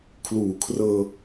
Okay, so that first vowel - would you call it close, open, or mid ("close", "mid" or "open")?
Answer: close